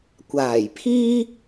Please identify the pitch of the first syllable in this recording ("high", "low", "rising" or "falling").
low